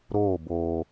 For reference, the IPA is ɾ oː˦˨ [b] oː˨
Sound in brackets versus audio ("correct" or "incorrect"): correct